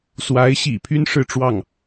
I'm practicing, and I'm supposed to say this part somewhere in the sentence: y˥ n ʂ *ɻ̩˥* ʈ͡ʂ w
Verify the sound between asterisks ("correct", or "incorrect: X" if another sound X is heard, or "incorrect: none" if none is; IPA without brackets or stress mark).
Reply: incorrect: ɻ̩˥˧